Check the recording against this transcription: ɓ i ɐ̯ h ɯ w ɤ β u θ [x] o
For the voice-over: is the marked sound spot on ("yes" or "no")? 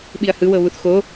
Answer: yes